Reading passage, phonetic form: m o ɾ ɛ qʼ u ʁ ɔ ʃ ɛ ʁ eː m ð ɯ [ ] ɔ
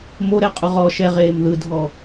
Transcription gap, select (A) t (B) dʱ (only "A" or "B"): B